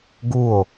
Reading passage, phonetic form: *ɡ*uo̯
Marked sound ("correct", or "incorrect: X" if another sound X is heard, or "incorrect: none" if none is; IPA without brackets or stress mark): correct